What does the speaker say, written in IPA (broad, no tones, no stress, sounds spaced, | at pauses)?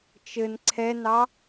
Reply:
t͡ʃ ɘ n ǀʰ ɛ n ɑ